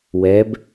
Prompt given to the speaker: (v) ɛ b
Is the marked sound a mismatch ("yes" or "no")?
yes